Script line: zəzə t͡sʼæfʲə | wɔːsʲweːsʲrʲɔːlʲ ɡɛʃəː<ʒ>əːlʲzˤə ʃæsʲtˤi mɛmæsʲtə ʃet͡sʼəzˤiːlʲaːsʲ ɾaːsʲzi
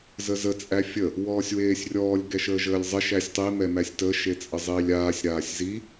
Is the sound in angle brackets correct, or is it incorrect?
correct